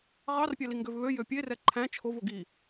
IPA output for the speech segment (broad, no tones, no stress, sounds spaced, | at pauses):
ʁ ɑ r pʲ æ l i ŋ ɡ ø v β ø j ø pʲ e r ɛ ǃʰ æ̃ t͡ʃʰ o v o ɡ i